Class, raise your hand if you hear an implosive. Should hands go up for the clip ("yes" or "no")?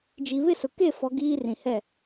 no